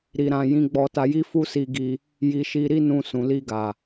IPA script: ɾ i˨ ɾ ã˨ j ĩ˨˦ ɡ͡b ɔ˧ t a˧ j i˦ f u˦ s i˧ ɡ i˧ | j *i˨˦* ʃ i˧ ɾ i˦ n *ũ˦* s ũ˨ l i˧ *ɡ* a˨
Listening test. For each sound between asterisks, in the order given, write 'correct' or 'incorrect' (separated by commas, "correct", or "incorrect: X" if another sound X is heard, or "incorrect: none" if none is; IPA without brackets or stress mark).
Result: incorrect: i˧, incorrect: ũ˧, correct